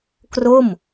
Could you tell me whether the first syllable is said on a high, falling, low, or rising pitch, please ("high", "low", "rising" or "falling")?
falling